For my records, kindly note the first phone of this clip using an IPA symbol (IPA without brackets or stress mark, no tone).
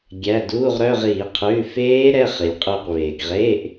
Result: ɡʲ